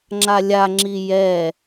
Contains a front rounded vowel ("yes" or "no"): no